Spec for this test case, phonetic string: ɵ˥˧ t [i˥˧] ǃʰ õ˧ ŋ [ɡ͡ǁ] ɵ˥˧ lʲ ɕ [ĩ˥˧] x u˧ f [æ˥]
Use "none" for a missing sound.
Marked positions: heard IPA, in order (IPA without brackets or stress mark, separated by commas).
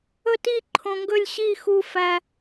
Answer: i˥˧, ɡ, i˥˧, æ˧